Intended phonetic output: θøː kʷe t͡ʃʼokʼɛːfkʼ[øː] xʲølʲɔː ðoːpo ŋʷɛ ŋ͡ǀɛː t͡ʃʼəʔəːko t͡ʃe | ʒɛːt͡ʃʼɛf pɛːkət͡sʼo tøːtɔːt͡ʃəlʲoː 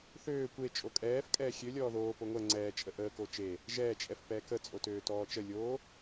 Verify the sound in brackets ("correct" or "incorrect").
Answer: incorrect